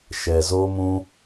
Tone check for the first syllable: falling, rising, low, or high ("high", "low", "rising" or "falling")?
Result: low